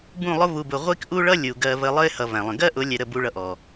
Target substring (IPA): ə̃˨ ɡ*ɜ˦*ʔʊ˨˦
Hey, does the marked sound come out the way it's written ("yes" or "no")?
yes